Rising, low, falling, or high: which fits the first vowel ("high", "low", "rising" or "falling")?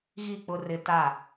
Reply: falling